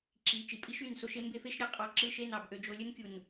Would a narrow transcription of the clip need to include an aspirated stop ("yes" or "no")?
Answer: no